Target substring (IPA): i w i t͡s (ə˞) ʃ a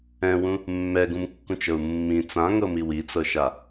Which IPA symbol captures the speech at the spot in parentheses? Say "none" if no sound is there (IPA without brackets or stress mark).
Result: ɤ